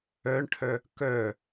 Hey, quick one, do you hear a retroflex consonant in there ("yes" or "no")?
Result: yes